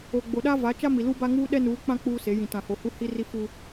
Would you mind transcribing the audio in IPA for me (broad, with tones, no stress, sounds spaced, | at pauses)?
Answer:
o˨ ɡ͡b o˨ ɗ a˦ v a˨˦ t͡ʃ a˦ m i˨ l u˦ b a˦ ŋ uː˦ ɗ ɛ˦ n uː˨˦ k͡p ã˦ k͡p uː˦ s e˨˦ j ĩ˨ t ã˨ h o˨ h u˦ h i˦ r i˦ f u˦